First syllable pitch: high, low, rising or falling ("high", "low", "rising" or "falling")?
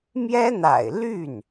high